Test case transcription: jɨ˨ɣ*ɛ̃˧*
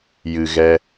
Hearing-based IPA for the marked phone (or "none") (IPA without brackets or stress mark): ɛ˧